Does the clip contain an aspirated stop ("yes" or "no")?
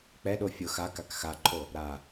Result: yes